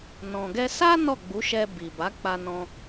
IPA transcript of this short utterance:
nɔ̃˨ɡɛ˧ sa˦ nɔ˦˨ɡ͡bu˨˦ʃɛ˧ bi˨ba˨˦ k͡pa˧ nɔ̃˧

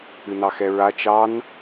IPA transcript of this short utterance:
ɨnɑxɛɹa t͡ʃɑn

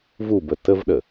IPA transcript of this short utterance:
vubə təvɗə

